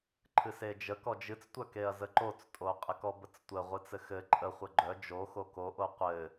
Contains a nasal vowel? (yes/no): no